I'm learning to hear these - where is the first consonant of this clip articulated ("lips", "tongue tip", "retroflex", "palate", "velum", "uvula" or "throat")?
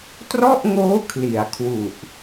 tongue tip